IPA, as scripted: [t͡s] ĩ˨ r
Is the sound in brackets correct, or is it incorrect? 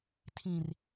incorrect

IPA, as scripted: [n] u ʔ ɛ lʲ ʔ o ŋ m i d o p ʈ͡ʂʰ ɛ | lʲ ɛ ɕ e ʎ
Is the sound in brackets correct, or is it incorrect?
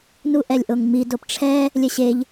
correct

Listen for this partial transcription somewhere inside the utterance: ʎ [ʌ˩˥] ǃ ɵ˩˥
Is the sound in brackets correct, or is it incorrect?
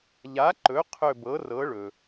incorrect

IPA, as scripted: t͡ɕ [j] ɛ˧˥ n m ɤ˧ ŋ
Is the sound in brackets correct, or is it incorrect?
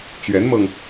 incorrect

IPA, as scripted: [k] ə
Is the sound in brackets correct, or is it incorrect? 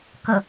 correct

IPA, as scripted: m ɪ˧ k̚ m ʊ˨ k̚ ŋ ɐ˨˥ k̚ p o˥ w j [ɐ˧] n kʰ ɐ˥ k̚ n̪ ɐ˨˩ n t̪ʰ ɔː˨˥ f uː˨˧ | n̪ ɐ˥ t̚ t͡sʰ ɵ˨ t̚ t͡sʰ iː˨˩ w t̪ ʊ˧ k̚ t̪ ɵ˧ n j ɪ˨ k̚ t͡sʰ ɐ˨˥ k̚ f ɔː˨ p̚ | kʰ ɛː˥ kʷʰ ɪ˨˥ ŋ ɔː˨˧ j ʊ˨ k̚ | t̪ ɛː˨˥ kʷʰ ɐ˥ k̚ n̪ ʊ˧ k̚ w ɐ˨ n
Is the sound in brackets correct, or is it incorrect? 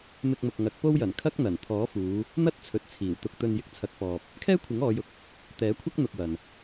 incorrect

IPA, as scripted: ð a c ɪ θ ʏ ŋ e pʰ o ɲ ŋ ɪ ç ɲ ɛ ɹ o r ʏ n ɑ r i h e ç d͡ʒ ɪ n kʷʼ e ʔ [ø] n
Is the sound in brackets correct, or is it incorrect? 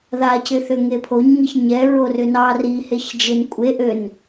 correct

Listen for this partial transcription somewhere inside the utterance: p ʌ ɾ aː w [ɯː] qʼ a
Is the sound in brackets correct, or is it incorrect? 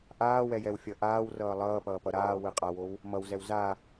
incorrect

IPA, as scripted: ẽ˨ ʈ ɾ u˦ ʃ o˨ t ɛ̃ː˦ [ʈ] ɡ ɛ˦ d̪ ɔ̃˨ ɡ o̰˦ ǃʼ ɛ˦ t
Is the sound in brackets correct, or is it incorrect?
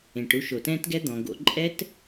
incorrect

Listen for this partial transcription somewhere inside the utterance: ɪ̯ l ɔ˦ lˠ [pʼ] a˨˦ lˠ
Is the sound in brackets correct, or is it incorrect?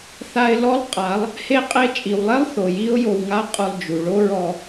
incorrect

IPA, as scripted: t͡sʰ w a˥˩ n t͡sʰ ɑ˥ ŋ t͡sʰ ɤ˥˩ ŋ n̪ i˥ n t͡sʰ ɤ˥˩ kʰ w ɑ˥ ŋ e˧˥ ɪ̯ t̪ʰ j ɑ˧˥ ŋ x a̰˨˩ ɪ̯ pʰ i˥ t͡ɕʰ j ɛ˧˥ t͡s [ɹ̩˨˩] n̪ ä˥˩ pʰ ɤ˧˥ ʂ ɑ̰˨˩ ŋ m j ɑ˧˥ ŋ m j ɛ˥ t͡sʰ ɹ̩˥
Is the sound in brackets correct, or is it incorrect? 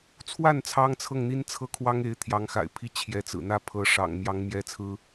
correct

